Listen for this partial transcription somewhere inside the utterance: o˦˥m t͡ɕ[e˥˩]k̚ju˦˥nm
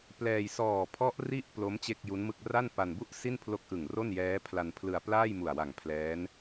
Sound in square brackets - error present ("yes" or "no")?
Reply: no